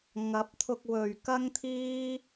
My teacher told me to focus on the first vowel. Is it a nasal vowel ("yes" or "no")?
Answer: no